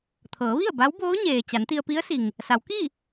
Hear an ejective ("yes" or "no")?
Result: no